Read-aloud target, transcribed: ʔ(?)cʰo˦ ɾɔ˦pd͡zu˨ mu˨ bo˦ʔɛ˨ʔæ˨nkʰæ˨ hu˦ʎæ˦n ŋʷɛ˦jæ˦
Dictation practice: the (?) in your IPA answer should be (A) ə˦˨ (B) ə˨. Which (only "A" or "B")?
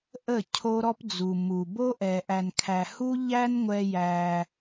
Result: A